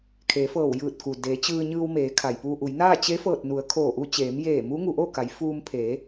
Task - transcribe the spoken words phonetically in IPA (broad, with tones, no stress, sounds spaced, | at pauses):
kʰ eː˩˧ f ɤː˧˩ w j ɯː˧˩ t̚ k u˩ d eː˩˧ t͡ɕ ɯː˧ ɲ ɯː˧ w m eː˩˧ kʰ a˩ j p uː˧ ʔ u˩˧ j n aː˥˨ t͡ɕ e˧˥ f ɤː˧˩ t̚ n u˩˧ ə̯ kʰ oː˧˩ ʔ u˧ t͡ɕ eː˩˧ m j eː˧˩ m u˧˥ ŋ u˩˧ ʔ oː˥˨ k a˩˧ j f uː˧ m pʰ eː˩˧